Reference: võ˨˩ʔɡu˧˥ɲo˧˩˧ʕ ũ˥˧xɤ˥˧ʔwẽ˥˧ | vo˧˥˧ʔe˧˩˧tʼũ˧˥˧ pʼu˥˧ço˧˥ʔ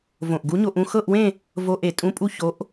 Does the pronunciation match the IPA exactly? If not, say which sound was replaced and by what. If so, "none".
ʕ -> ʔ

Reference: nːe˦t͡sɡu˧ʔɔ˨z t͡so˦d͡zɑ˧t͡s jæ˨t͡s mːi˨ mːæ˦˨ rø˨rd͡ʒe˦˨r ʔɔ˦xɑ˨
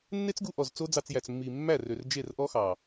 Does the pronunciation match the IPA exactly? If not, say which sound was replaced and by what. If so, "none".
none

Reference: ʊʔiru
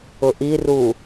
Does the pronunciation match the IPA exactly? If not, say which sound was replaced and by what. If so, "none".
none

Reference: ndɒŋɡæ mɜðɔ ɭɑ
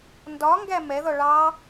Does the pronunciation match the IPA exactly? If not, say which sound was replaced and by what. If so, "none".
ɜ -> ɛ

